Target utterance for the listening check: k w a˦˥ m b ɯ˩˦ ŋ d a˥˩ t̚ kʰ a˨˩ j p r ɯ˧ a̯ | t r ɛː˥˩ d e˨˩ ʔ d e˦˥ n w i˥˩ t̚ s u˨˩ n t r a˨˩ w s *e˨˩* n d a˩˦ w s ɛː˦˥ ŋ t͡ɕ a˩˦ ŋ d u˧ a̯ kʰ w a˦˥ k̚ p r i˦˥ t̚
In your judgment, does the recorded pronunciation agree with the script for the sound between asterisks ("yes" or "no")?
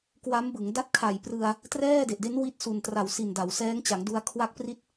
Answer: no